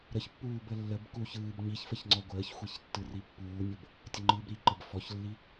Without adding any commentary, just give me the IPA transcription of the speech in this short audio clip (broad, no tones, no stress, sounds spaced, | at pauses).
ɾ ə ç pː uː b ə lː ə b k u ç ɯː b ɲ i ç f ə ç ŋ͡ǀ ɔ ɡʷ əː ç xʷ i ç tː ɯ r i pː uː nʲ ə b | tʲ ə ŋ͡ǃ ɯː b ɾ i ǃ ə b f ɔ ç lː i